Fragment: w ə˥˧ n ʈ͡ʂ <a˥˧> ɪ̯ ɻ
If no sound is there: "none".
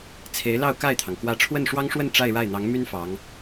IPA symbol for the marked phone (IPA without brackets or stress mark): a˥˧